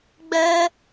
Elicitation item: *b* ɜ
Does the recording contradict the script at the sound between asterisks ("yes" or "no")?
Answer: yes